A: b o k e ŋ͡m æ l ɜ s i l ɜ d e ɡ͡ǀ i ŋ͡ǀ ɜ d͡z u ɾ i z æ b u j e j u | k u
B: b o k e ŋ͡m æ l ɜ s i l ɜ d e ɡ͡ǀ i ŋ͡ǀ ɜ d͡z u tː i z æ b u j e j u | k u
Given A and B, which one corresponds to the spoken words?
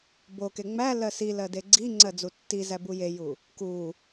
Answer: B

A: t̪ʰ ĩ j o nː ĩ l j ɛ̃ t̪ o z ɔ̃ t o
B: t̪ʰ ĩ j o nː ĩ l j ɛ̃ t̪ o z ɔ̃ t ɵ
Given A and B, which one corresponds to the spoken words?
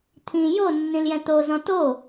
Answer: A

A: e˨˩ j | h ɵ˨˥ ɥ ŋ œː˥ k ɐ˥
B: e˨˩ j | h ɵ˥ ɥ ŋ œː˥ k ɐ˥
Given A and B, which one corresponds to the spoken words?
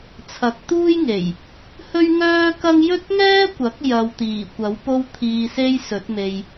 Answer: B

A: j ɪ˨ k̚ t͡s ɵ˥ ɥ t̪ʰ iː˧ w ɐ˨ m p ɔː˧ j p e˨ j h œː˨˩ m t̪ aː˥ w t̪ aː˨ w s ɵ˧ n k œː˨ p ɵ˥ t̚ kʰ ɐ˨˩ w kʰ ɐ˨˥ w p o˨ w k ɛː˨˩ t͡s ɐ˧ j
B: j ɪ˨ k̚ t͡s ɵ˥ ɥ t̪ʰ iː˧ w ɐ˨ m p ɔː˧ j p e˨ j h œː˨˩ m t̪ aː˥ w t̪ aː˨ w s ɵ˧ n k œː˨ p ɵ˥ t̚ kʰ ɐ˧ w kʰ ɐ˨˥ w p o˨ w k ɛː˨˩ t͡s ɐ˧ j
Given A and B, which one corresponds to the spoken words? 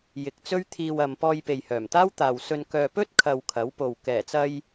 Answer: B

